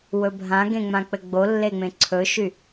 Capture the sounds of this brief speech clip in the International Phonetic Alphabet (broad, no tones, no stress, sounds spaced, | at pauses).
w ɵ bʱ ã ɡ ẽ ŋ͡m ã k͡p ɘ ɡ͡b o lː e ŋ͡m ẽ ǀʰ ɵ ʃ y